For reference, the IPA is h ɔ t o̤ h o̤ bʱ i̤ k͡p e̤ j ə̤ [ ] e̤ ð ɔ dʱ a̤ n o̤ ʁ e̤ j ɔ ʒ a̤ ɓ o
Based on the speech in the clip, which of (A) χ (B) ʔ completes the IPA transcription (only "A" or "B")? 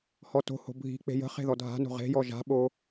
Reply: A